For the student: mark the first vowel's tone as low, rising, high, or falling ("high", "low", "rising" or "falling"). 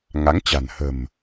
rising